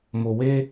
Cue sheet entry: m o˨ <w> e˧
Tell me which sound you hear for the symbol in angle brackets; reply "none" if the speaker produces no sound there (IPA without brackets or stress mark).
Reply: w